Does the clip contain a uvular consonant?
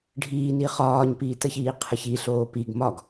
yes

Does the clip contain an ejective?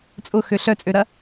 yes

